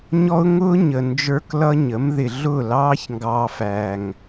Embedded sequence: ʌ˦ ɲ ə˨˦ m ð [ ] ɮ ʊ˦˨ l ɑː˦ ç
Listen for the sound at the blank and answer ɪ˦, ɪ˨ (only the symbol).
ɪ˨